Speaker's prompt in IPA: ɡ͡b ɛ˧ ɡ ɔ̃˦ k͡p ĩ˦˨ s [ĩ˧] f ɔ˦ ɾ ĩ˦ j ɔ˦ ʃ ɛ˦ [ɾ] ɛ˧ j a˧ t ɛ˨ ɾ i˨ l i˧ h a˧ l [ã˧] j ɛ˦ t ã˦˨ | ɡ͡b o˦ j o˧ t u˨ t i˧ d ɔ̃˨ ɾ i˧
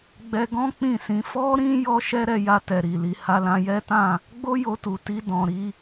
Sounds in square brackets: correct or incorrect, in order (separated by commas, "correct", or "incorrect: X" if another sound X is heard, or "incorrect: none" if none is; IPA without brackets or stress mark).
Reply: correct, correct, correct